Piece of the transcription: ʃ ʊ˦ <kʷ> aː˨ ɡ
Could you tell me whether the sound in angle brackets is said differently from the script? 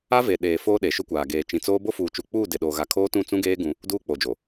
no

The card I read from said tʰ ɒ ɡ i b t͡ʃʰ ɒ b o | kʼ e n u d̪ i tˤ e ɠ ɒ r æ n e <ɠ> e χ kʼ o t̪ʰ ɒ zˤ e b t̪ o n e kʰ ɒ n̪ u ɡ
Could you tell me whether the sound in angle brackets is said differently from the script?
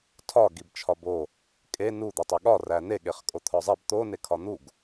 no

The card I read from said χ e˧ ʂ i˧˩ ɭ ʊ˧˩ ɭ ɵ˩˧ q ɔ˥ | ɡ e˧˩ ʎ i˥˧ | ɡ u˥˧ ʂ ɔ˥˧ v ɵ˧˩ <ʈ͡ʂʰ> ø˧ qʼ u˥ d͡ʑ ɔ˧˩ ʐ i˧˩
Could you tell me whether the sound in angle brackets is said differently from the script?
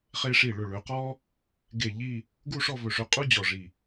yes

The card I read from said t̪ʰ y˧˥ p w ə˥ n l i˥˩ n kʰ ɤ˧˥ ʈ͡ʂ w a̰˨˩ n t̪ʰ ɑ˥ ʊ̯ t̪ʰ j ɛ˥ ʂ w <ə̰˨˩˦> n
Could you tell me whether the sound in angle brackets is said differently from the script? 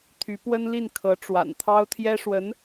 yes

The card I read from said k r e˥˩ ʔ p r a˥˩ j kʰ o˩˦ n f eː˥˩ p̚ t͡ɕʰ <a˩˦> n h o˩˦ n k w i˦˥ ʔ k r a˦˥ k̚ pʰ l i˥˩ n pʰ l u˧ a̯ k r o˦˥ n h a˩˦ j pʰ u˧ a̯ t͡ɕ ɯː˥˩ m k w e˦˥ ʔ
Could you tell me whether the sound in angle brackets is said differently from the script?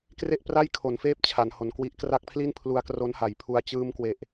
no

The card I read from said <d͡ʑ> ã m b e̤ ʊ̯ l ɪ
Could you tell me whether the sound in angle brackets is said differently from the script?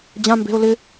no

